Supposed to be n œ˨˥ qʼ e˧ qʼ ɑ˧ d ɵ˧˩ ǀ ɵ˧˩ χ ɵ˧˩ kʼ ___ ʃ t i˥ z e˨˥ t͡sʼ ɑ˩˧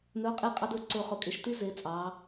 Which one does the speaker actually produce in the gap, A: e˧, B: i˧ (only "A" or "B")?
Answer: A